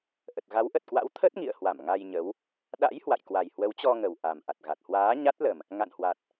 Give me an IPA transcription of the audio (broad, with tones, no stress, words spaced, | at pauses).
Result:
ʔə˨˩t̚ɣa˨˦wʔə˨˩t̚kwa̰˧˥w t̪ʰə˦˥t̚ŋḭ˧˨ə̯hwa˧˩m ŋa˧jɲə˨˦w | ɗa̰˧˥j hwa̰˧˨jkwa˨˩j hwə˨˦wt͡ɕɔ˧ŋə˨˩w ʔa˨˩mʔa˨˩t̚ɣa˨˩t̚ hwaː˨˦ɲa˦˥t̚lə˨˩m | ŋa̰˧˨nhwa˨˩t̚